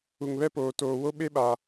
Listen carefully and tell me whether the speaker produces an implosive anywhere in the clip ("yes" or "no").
yes